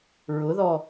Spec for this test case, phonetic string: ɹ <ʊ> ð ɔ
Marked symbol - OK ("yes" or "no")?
yes